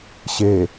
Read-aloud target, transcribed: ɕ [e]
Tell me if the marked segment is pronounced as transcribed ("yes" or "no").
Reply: yes